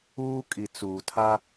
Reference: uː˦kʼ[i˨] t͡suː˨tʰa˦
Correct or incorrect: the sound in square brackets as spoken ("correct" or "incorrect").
correct